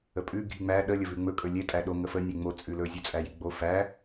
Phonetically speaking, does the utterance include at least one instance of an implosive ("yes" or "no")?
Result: yes